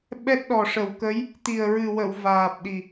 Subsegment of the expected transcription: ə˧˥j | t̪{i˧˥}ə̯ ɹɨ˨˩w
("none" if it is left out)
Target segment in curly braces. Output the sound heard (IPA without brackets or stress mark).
i˨˩